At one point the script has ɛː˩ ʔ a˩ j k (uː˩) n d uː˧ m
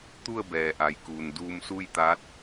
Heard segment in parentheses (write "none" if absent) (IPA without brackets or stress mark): uː˩